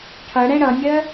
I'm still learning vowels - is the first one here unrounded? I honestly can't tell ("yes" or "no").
yes